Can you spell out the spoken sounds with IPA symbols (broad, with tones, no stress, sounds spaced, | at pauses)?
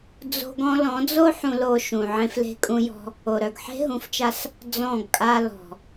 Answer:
d͡z o̤˦ ɡ ɔ̃˦ l ɔ̃˨˦ d͡z o˦ ħ ũ˧ l o˧ ʃ ũ˨ ʕ ẽ˧ f l e̤˧ kʼ ũ˧ j ɔ̤˧ | o˨ ɾ œ˨ ɡ ħ e̤˦ ɦ ũ˨ f t͡ʃ a˧ s | d͡z ɔ̃˦˨ ɡ kʼ a˧ l ɔ̤˨